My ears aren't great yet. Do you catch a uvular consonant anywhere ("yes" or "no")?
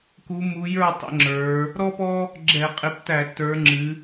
yes